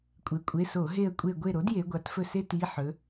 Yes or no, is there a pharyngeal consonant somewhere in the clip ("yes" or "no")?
yes